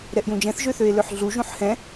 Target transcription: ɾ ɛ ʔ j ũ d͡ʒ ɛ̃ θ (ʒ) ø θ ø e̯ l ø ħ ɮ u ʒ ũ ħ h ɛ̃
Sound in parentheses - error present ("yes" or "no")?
no